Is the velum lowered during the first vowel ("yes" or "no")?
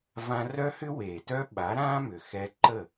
yes